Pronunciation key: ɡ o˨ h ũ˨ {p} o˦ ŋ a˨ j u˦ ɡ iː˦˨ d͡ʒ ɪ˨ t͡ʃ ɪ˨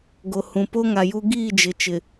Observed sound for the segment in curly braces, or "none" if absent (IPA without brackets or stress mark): p